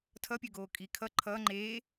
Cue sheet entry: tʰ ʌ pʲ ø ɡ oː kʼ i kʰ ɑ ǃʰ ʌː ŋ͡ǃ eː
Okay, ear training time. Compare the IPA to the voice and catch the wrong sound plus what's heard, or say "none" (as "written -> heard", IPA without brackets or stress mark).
ɑ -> ʌ